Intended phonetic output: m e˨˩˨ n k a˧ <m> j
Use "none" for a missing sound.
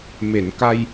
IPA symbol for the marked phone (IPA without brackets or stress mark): none